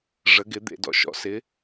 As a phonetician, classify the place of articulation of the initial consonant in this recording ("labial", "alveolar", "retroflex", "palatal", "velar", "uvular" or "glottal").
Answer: retroflex